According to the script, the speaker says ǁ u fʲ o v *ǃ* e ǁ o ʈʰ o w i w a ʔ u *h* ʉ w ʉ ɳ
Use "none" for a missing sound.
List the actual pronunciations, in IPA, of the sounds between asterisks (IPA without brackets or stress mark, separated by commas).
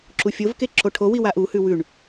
k, h